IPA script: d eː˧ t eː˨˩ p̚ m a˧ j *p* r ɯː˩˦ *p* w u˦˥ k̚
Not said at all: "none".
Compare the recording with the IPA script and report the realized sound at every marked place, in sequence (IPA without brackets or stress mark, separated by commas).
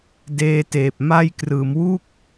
k, m